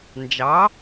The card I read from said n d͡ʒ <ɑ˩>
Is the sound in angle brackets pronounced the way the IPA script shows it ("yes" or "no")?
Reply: no